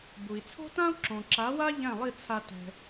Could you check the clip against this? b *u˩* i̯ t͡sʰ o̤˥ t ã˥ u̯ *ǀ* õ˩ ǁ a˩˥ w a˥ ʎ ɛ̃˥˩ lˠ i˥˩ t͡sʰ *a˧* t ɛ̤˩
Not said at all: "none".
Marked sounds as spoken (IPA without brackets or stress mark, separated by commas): u˩, ǁ, a˧